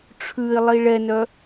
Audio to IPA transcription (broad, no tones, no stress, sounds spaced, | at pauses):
ʈ͡ʂʰ ʉ ɪ̯ lˠ i ɭ ɛ n œ